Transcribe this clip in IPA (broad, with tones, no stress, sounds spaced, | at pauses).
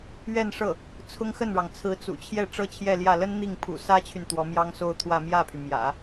ɥ ɛ˥˧ n ʂ ɤ˥˩ | t͡sʰ ʊ˥ ŋ x ə˥˩ n ɻ ɑ˩ ŋ t͡sʰ ɹ̩˧˥ t͡s ṵ˨˩ t͡ɕʰ j ɛ˥˩ ʈ͡ʂ ɤ˥ t͡ɕʰ j ɛ˥˧ l j ä˥˩ l ə˥ n n̪ i˥˩ ŋ pʰ ṵ˨˩ s ä˥ t͡ɕʰ y˨ n t̪ w ɔ˧˥ m j ɑ˥ ŋ s o˥˧ ʊ̯ t̪ʰ w ä˥˧ m j ä˥˩ pʰ y˩ m j ä̰˨˩˦